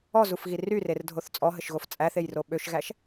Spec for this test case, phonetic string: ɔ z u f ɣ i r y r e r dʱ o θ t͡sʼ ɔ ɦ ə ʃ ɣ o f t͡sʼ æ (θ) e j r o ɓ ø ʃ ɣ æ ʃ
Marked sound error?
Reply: no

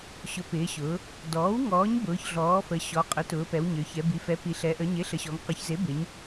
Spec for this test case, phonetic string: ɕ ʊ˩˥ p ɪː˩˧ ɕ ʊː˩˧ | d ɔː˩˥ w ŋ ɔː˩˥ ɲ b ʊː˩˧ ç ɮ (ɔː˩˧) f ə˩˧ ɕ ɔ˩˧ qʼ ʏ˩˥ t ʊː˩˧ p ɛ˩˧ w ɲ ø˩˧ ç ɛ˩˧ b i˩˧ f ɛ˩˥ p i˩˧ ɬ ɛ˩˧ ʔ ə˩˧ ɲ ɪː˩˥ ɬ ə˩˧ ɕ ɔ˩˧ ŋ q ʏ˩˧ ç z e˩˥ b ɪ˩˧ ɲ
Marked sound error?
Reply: yes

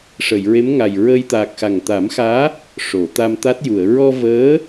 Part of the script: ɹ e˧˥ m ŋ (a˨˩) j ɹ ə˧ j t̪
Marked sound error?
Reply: no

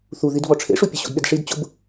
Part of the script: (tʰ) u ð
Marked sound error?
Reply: yes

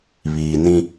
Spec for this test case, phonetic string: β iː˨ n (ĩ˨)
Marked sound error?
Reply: yes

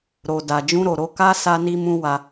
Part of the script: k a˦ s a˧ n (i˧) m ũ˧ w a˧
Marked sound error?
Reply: no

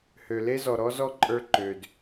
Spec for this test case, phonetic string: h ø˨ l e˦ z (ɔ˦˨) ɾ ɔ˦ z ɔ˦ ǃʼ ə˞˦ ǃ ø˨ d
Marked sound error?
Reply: yes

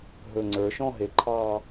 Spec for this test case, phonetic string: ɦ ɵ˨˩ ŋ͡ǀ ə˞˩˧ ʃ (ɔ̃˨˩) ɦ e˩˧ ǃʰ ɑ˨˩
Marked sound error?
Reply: yes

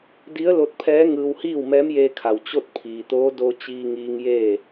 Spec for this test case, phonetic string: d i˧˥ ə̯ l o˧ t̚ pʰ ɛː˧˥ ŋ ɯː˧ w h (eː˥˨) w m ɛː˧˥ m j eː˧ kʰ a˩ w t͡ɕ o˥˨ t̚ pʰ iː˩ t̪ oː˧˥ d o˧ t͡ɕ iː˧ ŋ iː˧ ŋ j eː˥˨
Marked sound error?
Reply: yes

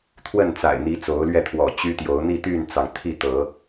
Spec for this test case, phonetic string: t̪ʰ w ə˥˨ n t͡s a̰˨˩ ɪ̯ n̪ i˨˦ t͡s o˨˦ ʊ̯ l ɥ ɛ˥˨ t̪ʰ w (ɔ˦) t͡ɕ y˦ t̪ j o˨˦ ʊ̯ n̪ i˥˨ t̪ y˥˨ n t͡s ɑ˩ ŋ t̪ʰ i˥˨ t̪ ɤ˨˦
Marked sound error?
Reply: yes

